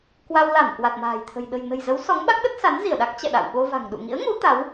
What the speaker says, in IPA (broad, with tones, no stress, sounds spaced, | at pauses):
k w a˧ w l a˧˩ m k w a˨˩ t̚ m a̤ː˨˩ j t̪ʰ ə̤˨˩ j ɗ ə̤˨˩ j n ə̤˨˩ j z ə˨˦ w s ɔ˨˦ ŋ ɓ a˦˥ k̚ ɗ ə˦˥ t̚ s a˨˦ n z i˧˩ ə̯ ɗ a˦˥ k̚ t͡ɕ ɛ̰˧˨ ɗ a̰˧˨ w ɓ o˧ v a̤˨˩ ŋ ɗ ṵ˧˨ ŋ ḭ˧˥ ə̯ ŋ u˨˦ t̪ a˨˦ w